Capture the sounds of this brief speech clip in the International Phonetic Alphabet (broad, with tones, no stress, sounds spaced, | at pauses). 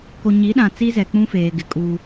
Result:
k o˨ ɲ i˨˦ ɗ ã˨ t͡s i˦ z ɛ˨ k͡p ũ˦ f eː˨ ɡ ɪ˨ kʼ uː˦